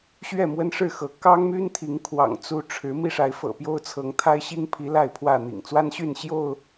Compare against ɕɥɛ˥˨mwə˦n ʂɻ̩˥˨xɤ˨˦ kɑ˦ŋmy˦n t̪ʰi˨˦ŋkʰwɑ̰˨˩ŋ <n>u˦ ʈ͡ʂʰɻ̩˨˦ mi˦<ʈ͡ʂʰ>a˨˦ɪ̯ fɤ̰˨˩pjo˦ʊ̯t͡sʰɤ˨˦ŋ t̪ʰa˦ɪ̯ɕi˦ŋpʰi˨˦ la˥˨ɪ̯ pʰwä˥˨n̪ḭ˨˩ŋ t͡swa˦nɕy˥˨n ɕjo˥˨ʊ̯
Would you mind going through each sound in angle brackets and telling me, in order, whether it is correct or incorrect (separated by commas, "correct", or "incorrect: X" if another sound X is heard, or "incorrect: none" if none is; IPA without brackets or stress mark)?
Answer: incorrect: t͡s, incorrect: ʂ